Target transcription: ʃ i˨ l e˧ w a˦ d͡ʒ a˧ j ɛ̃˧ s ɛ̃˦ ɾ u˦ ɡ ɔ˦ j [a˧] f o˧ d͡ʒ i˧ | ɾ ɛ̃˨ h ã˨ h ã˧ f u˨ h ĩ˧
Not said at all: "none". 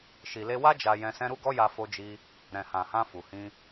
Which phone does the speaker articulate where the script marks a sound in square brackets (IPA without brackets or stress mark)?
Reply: a˧